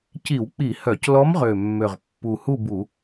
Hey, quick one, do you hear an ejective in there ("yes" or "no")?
no